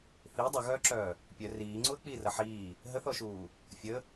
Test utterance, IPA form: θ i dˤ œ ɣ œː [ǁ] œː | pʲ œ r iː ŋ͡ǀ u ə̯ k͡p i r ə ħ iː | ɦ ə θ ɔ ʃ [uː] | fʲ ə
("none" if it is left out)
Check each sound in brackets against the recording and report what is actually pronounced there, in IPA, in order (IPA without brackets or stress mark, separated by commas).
ǁ, uː